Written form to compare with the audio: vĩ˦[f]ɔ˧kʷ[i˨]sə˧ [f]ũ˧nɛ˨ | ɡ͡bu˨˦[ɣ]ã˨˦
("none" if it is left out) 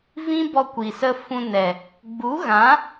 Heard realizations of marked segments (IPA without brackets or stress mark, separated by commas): b, i˨, f, ɣ